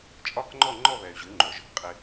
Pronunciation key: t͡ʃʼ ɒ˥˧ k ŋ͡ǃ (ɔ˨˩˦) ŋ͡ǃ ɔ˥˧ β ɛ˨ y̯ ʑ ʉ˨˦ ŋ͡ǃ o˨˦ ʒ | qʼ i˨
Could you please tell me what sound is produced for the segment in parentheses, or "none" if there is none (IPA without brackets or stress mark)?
ɔ˥˧